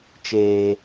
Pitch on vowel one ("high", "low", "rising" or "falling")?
low